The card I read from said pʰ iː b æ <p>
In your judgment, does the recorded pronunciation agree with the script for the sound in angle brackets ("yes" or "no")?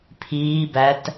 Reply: no